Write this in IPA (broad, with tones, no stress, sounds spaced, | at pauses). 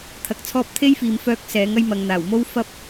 t̪ʰ ɐ˧ k̚ t͡sʰ ɔː˥ p̚ t̪ʰ e˥ j f iː˨ m f œː˧ k̚ s ɛː˨˥ ŋ ɐ˥ j m ɐ˨ ŋ n̪ aː˨˩ w m o˥ w f ɐ˥ p̚